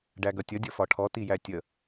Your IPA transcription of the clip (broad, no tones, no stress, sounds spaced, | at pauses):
ɖ æ ɡ ʌ tʲ ʌ dʲ ʌ f ɒ ʈʰ ɔ t i j æ tʲ ə